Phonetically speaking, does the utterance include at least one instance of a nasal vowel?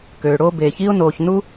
no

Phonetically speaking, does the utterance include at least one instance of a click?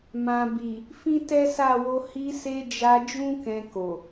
no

